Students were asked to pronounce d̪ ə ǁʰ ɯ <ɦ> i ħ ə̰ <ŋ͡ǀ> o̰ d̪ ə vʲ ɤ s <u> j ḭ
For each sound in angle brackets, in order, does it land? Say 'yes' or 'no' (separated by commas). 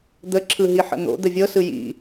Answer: yes, no, no